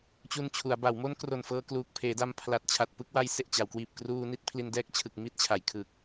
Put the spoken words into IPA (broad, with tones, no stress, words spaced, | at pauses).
t͡ɕu˧nt͡ɕʰu˩˦a̯ba˩˦w mo˦˥nkro˨˩n fɤː˧kluː˨˩k̚pʰeː˩˦da˧m pʰla˨˩t̚t͡ɕʰa˨˩t̚ pɯ˦˥k̚ wa˧jse˨˩ʔ t͡ɕa˩˦wkwiː˨˩p̚ kruː˧ni˦˥t̚ pʰli˧ndɛː˦˥k̚t͡ɕʰɯ˨˩k̚ mi˦˥t̚t͡ɕʰa˩˦jkʰɯ˨˩k̚